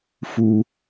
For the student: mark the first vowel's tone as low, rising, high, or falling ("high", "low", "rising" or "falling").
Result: low